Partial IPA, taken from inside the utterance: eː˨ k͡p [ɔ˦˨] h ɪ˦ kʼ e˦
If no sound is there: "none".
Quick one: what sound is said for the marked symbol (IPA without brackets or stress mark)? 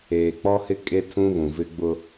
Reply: ɔ˦